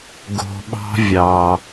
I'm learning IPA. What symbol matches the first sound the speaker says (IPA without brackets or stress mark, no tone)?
ɡ